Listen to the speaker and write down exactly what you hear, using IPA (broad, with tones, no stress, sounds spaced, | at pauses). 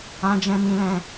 ã˦ d͡ʒ ɛ̃˦ m ĩ˦ l ɛ̃˦